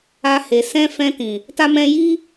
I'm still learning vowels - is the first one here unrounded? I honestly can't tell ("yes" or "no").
yes